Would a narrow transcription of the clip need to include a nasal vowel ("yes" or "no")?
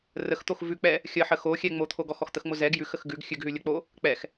no